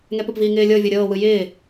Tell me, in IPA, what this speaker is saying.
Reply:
ŋɛpəpviː ŋɪːlʲɤvʲɤ ɾʲɤːwɯ jɪː

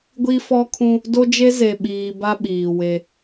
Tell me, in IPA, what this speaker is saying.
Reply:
ɡʷi˦fɔ˦kʰũ˦ | do˦d͡ʒe˦ ze˨ɓiː˨ba˦ ɓiː˨we˦

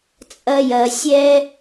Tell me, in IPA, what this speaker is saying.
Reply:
t͡sʼɐ˦ jɐ˧sʲɛ˦

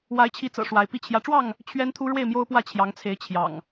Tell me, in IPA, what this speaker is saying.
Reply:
wa˨˦ɪ̯t͡ɕʰi˨˦t͡sɤ̰˨˩ ʂwa˨˦ɪ̯pi˥˨ t͡ɕʰjä˨˦ʈ͡ʂwɑ˥˨ŋ | t͡ɕʰɥɛ˦n t̪ʰu˦ɻwe˥˨ɪ̯mjo˦ʊ̯pwä˥˨ t͡ɕʰjɑ˨˦ŋt͡sʰe˨˦ɪ̯ t͡ɕʰjɑ̰˨˩ŋ

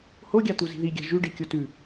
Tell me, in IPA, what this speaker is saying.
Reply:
hoɡʲat̪u zi̤ðiɡʲa̤ ʒʉɖi kʲotʉ

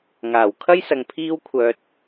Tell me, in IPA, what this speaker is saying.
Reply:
ŋaː˨˩w kʰɐ˥jsɐ˨ŋ pʰiː˧wkʷʰœː˨t̚

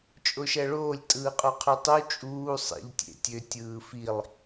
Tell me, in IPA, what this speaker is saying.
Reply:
t͡ʃʼoʃæɭoːlʲ tʼɯːqʼoqʰytˤu t͡ʃʼuː sˤḛʎ tʲḛtʲø tʲɯːfilˠ

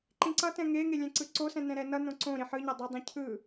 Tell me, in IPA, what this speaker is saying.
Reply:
ǃĩǀʌtɛ̃ ŋeŋe lʲɛ̃ǀɯǀosɛ̃ nɛ̃ɾɛnʌnõ ǀõɾi ħɯɲa dˤʌdˤĩ cʰɯ

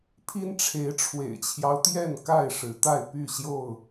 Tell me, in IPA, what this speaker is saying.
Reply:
pʰi˦n ʈ͡ʂʰe˨˦ɪ̯ʈ͡ʂʰwḛ˨˩ɪ̯t͡ɕʰjɑ˦ʊ̯t̪jɛ˥˨n ka˥˨ɪ̯ʂɻ̩˨˦t̪a˥˨ɪ̯ py˥˨ɕjo˥˨ʊ̯

